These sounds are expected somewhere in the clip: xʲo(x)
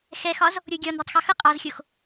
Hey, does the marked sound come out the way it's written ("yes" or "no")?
yes